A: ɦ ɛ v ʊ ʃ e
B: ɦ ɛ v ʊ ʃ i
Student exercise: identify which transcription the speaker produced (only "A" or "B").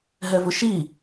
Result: B